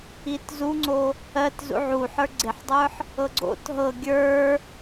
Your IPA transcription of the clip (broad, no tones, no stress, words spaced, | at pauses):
itzuŋ͡ǀo | ɜt zṵʕuħə˞ ɡ͡ǀeħdˤə˞ħ | ɤɡ͡ǀo̰t ɦɤ ɡʲə˞